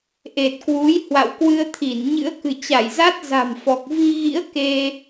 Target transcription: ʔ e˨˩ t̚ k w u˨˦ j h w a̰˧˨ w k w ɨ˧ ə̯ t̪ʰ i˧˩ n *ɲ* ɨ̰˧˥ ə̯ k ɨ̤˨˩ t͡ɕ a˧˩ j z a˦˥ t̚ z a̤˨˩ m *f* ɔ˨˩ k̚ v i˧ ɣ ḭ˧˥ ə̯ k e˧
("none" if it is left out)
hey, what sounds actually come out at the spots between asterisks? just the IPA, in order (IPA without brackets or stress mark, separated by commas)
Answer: ɲ, f